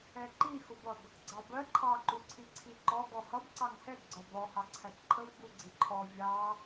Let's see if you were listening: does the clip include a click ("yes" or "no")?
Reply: yes